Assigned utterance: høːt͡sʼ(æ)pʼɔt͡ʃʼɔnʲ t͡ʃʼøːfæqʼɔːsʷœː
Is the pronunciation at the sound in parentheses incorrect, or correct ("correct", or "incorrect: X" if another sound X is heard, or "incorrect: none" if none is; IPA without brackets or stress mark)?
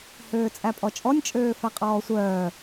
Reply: correct